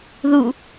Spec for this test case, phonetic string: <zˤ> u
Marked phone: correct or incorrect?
incorrect